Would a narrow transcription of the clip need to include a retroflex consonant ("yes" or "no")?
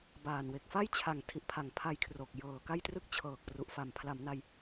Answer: no